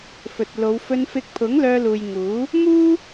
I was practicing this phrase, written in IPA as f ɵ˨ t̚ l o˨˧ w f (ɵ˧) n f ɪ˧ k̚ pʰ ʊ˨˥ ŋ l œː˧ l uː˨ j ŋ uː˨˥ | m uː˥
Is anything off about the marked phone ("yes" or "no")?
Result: no